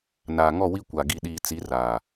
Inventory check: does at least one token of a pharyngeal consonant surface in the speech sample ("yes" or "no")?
no